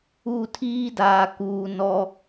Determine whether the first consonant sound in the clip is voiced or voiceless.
voiceless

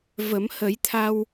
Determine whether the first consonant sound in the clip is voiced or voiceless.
voiced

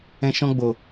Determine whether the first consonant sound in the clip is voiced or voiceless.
voiceless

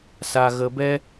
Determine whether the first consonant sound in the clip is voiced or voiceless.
voiceless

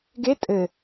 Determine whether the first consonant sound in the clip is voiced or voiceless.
voiced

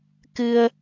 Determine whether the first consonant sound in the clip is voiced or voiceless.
voiceless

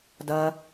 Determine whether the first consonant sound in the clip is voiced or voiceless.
voiced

